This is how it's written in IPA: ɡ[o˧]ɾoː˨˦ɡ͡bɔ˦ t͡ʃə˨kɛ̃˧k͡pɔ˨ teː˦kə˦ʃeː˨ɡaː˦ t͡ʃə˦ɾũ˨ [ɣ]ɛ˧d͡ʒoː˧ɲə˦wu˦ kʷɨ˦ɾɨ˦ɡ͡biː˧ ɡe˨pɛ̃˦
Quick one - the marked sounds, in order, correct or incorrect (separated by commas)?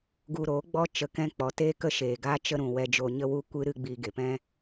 incorrect, incorrect